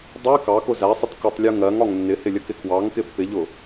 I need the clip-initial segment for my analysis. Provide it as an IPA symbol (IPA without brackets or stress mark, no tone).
dˤ